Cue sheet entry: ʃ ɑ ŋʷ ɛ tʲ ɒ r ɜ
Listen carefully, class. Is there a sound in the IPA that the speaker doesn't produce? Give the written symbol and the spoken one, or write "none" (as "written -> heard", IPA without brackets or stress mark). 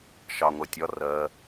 ɛ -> ɜ